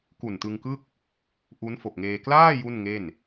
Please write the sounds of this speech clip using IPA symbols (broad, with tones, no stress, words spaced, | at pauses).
ku˨˩ntɯ˧ŋkɯ˥˩k̚ | ʔu˦˥nfo˨˩k̚ŋeː˧ klaː˥˩ ju˥˩nŋe˥˩n